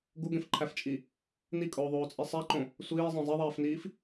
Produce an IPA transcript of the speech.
ɡ u ɡ ẽ f ǃʰ æ f t͡ʃʼ i | n i kʼ oː ðˤ oː t͡sʼ i sˤ æ ǃ õ | sʷ iː zˤ ẽ zˤ e ðˤ æː f n iː f

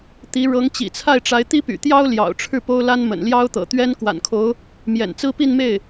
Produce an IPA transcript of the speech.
t̪ i˧˥ ɻ ɤ˧˥ ŋ t͡ɕ ḭ˨˩ t͡sʰ a˥˩ ɪ̯ ʈ͡ʂ a˧˥ ɪ̯ t̪ i˥ p y̰˨˩ t̪ j ɑ˥ ʊ̯ l j ɑ̰˨˩ ʊ̯ ʈ͡ʂʰ ɻ̩˥˩ p o˥ ʊ̯ l a˥ n m ə̰˨˩ n l j ɑ˥ ʊ̯ t̪ ɤ̰˨˩ t̪ ɥ ɛ˥ n k w a̰˨˩ n kʰ o˧˥ ʊ̯ | m j ɛ̰˨˩ n t͡s ɹ̩˥ p i˥˧ n m e˥˩ ɪ̯

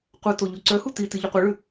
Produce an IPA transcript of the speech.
qʷ œ t o ʎ u ǀ œ h u t i t i ʎ u qʷ ɑ ɭ ʉ

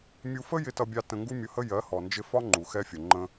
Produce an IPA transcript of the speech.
mʲ u˧ f ə˦ j ɪ˧ t ʌ˧ bʲ ɑ˧ t ə̃˧ ŋ ɡ u˦ mʲ ʊ˧ h ə˦ j ɜ˨˦ h ɔ˨ n d͡ʒ ɪ˧ f ɒ˦ ŋ͡ǃ u˨ x ɛ˧ fʲ ʊ˨ ŋ͡ǃ ə̃˧

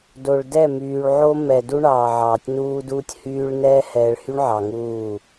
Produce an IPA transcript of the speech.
d o˨ ɭ d ɛ˦˨ m yː˨ ɭ ʕ o˦ m ɛ˨ d u˦ ɳ ɑː˨ ʕ ɑː˨ tʲ n uː˦ d uː˦ tʲ h yː˦ ɭ n ɛː˦ h ɛː˨ ɭ h y˦ ɳ ʕ ɑ˨ ŋ uː˦˨

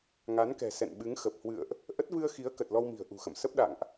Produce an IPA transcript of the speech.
ŋ a˨˦ n k ɛ̤˨˩ s ɛ̰˧˨ n ɓ ɨ˨˦ ŋ x ə˨˩ p̚ h w ɨ̰˧˨ ə̯ ʔ | ʔ ə˦˥ t̚ v ɨ˧ ə̯ x i˨˦ ə̯ k ə˨˩ t̚ l ɔ˧ w m i̤˨˩ ə̯ ʔ ṳ˨˩ x ə̰˧˨ m s ə˦˥ p̚ ɗ a̰˧˨ ŋ ʔ

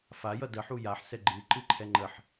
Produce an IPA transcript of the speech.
f a j ʌ d ə ħ u j a ħ s ɛ ɡ͡ǃ ɨ ǃ ɨ ǃʰ ɛ ŋ͡ǃ ə ħ

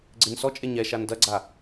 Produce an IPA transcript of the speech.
ɡ͡ǀ e n s ɔ t͡ʃʼ e ɲ ɛ ʃ a n d ɐ ɡ͡ǀ a

